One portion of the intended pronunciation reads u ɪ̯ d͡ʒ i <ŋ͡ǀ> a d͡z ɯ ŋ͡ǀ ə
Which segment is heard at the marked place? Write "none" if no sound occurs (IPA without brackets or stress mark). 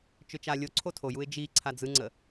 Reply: ǀʰ